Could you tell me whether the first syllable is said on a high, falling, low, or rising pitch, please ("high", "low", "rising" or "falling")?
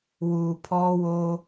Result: low